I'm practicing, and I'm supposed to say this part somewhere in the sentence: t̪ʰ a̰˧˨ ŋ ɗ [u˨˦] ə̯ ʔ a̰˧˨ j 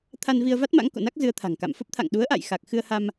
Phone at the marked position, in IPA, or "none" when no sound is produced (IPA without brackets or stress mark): u˨˦